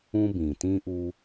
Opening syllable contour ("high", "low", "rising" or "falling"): high